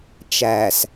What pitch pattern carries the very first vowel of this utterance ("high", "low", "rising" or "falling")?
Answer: low